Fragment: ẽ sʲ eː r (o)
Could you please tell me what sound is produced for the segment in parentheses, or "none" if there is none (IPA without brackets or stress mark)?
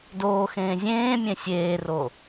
o